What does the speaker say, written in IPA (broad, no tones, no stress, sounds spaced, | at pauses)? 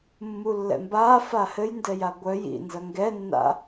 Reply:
mː u lː ɛ̰ m b aː f a h ɘ j n d ɛ j a ɡʷ œ j ḭ n z ɐ ŋ ɡ ɛ nː a̰